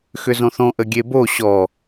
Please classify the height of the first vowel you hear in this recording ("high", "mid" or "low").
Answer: high